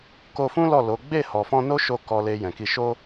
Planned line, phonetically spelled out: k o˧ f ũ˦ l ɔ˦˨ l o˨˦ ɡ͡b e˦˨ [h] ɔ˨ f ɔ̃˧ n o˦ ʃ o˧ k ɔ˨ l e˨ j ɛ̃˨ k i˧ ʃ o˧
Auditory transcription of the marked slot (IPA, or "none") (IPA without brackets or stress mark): h